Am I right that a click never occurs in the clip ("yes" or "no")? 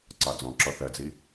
no